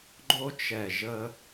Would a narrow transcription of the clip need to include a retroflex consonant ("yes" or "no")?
no